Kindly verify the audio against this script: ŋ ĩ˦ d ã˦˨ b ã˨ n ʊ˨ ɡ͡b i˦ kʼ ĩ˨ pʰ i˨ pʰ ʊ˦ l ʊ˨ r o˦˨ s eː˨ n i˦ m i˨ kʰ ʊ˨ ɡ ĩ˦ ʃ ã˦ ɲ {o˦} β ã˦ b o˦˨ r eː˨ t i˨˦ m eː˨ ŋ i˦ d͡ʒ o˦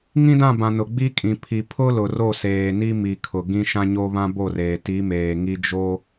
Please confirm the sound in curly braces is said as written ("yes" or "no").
yes